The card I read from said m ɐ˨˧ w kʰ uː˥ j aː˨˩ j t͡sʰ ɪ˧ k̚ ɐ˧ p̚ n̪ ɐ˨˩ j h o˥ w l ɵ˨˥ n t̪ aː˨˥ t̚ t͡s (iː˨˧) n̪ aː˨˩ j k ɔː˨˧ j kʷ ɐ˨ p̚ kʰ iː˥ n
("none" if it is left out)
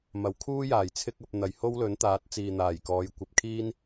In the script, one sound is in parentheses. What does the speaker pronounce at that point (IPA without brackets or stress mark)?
iː˨